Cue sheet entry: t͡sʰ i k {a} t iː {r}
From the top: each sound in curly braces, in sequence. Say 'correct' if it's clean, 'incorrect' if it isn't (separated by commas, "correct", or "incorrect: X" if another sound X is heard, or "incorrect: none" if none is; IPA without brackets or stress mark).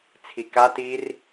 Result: correct, correct